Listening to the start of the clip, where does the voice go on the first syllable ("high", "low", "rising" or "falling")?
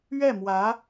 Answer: falling